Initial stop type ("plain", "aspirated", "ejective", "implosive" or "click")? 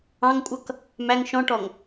ejective